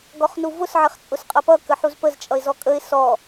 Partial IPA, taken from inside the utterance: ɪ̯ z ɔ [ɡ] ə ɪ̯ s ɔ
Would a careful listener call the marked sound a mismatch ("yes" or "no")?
yes